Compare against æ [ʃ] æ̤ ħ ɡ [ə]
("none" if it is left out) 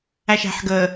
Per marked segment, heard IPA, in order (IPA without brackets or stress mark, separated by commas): ʃ, ə